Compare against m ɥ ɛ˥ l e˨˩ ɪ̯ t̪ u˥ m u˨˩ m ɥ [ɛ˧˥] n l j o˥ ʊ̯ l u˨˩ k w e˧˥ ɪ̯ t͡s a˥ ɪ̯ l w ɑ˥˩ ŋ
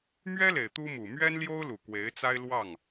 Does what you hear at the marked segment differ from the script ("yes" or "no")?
yes